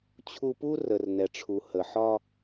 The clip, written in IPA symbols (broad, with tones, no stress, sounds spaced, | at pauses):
t͡ɕʰ u˧ p u˥ r ə˩ r n ɛ˩ ʈ͡ʂʰ u˩ h ə˩ ħ ɒ˧